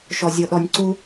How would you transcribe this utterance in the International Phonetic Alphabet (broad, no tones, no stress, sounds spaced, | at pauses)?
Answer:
ʃ ɔ zʲ ɤ ɗ ɔ nʲ ǀ u